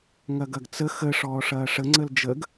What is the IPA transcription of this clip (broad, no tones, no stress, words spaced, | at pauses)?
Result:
ŋɐɡɐɡt͡sə xə ʂɔːʂɐːʂə ŋ͡ǀəld͡ʒəɡ